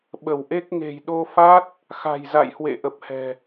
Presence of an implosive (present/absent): present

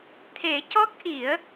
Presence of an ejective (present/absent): absent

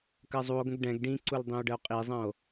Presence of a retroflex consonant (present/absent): present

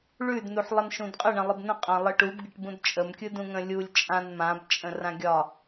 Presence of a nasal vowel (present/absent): present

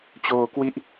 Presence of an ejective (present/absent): absent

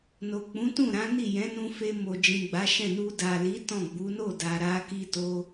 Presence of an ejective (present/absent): absent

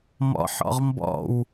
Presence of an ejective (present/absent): absent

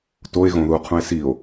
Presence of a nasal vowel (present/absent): present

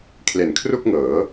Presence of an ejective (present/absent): absent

